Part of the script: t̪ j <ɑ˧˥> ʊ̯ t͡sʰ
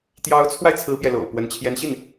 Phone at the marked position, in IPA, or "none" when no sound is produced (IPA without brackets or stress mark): ɑ˧˥